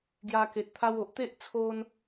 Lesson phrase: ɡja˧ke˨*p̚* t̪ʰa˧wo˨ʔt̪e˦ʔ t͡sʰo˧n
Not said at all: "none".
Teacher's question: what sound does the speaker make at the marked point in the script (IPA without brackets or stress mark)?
t̚